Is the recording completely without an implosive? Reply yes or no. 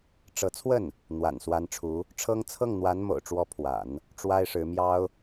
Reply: yes